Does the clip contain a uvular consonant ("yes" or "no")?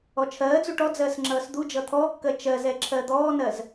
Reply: no